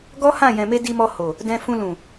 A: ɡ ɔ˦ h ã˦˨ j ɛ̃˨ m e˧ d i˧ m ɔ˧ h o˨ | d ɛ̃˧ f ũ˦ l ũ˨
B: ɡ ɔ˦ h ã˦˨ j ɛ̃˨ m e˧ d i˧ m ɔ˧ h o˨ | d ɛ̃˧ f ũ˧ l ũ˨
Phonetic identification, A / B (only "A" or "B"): B